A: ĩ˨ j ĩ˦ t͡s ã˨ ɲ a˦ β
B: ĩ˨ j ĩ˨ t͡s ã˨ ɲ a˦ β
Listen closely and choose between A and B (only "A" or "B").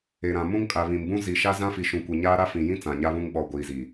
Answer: A